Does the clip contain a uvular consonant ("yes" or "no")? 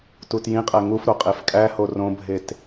yes